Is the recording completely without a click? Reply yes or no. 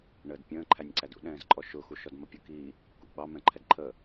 no